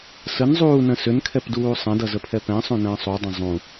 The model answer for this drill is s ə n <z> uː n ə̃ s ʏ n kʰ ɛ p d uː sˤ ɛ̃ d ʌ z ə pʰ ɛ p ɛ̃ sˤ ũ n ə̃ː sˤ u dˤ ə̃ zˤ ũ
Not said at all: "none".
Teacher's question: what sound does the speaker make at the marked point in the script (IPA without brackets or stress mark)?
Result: zˤ